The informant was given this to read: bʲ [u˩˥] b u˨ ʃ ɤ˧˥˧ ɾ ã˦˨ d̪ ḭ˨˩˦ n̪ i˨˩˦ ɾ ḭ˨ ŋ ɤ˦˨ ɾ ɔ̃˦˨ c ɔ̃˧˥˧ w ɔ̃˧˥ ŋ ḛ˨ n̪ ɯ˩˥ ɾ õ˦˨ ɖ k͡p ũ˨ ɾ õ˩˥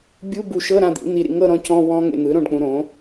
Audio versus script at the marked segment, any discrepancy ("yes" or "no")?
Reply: yes